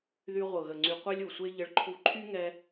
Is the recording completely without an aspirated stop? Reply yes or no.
no